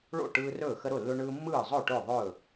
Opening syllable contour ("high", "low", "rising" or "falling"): falling